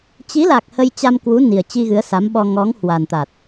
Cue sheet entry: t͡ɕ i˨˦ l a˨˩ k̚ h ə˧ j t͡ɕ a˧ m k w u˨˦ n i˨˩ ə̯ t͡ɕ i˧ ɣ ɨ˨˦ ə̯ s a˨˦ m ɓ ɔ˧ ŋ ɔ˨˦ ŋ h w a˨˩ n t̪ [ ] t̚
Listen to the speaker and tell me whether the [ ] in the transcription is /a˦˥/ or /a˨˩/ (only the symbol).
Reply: a˨˩